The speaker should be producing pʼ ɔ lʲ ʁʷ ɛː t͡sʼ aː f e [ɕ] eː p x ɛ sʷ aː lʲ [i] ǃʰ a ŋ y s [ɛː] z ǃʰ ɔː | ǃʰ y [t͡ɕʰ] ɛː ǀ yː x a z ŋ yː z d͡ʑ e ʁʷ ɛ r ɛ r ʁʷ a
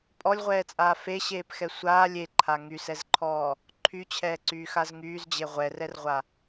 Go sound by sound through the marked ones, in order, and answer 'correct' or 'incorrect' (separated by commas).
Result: correct, incorrect, incorrect, correct